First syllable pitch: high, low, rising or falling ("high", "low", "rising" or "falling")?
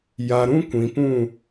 low